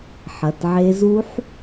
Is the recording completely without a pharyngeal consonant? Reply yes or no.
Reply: no